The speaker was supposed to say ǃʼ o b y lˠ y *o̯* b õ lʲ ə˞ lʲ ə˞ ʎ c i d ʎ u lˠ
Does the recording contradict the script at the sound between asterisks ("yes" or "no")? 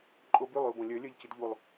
no